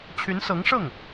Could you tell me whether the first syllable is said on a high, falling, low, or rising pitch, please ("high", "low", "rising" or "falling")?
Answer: rising